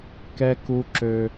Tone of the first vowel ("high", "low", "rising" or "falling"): high